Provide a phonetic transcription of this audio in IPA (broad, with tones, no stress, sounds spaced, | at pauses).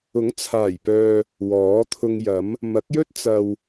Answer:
ʊ˨˥ ŋ t͡sʰ aː˨˩ j p œː˨ | w ɔː˨˥ t̪ʰ ʊ˧ ŋ j ɐ˨˥ m | m ɐ˨˥ k̚ j ɵ˥ t̚ t͡s ɐ˨ w